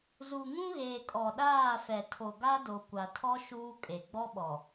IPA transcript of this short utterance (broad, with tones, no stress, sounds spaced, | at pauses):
z u˨ ŋ ũ˦ ɣ eː˨ kʼ ɔ˨ ɗ aː˦˨ f ɛ˨ tʰ o˨ ɡ a˦ d o˨ kʷ a˨ tʰ ɔ˦ ʃ uː˦ kʼ e˨ ɡ͡b ɔ˦ ɓ ɔ˨